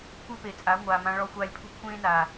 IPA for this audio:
kʷe˦pe˨t͡sʼa˨˦ ŋʷaː˨mã˧ ɭɔ˧xʷaː˧lʲpʰṳ˦ kʷʰẽː˦naː˨

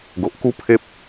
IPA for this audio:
ɡo˨ʔku˦pʰe˦p̚

